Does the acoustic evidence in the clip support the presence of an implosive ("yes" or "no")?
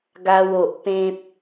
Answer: no